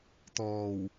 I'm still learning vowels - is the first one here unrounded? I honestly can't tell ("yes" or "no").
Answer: no